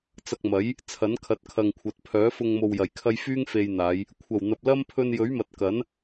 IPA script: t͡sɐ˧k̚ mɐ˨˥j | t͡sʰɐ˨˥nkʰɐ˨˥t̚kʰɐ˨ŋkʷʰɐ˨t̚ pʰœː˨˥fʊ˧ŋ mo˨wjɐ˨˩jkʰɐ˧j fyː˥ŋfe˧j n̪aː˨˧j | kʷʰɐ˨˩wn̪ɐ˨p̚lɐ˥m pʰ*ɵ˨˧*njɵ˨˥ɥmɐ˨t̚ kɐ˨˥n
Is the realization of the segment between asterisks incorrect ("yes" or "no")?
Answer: yes